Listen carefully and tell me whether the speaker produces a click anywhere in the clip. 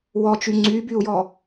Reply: yes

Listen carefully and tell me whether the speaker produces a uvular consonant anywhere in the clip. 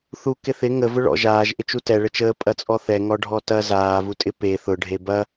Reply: no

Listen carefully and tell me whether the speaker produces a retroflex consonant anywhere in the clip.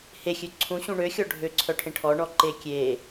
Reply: yes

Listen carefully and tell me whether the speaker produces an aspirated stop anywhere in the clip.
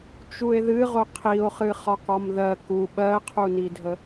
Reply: yes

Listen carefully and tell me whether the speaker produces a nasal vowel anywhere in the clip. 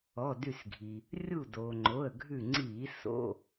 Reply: no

